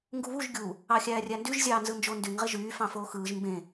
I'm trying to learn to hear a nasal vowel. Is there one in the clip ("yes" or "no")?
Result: yes